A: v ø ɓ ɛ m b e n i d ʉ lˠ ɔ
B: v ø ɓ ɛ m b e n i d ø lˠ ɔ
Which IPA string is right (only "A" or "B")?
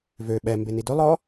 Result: B